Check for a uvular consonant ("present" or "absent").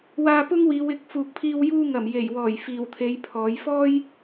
absent